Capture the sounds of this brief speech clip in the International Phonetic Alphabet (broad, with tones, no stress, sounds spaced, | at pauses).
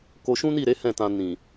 k o˧ ʃ ũ˦ n i˦˨ ɾ e˨˦ h ɛ̃˦˨ t ã˧ n ĩ˨